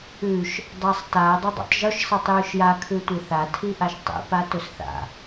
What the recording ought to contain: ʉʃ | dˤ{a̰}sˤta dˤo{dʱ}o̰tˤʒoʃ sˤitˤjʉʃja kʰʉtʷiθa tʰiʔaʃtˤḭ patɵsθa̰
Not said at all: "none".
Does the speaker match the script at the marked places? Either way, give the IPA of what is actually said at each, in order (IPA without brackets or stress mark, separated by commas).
a, dˤ